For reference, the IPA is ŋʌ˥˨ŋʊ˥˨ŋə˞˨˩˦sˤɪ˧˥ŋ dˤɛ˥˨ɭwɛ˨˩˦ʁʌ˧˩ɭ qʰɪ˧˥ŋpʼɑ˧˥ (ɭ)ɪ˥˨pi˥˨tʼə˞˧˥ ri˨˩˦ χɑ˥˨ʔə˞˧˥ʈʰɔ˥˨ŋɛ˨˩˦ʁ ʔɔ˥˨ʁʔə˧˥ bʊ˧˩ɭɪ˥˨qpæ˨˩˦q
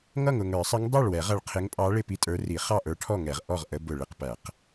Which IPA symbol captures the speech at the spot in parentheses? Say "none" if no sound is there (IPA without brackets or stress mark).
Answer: ɭ